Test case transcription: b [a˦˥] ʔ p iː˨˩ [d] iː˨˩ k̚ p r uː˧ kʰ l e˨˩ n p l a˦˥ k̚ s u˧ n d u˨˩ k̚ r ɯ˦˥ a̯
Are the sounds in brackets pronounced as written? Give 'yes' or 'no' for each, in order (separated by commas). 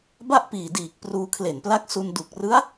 no, yes